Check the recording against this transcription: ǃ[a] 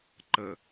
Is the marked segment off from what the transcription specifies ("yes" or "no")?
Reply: yes